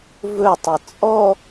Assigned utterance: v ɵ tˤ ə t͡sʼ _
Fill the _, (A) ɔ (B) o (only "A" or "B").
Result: A